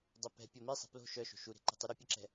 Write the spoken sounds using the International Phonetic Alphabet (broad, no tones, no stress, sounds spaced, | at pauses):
dˤ ɛ p ɛ̤ pʲ o m i sˤ ɛ̤ p l o̤ ʃ œ ʃ o̤ ʃ u ɾ e̤ ǃ ɛ̤ tˤ y ɾ ə pʲ ɛ ǁ ɛ̤